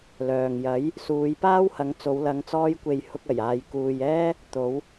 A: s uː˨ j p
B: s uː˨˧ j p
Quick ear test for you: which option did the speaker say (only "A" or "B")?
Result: B